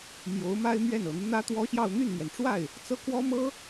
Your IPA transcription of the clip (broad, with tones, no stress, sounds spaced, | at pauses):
m j o˧˥ ʊ̯ m a˥ ɪ̯ m ɥ ɛ˥˩ n ɤ˨˩ n̪ u˦ n̪ ä˥ t̪ w ɔ˥ ɕ j ɑ˥˧ ʊ̯ n̪ y˥˩ n n̪ ɥ ɛ˩ n ʈ͡ʂ w a˥˩ ɪ̯ | t͡s ɤ˥˩ k w ɔ˥ m ɤ˥